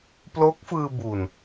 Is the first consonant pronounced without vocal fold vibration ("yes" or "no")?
yes